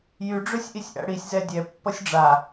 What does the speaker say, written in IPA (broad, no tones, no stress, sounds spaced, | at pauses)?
j y ɖ͡ʐ ø sʲ ʔ i sʲ ʔ æ̰ ɽ i sʲ z ɛ dʲ ɛ pː ʌ sʲ ɖ͡ʐ a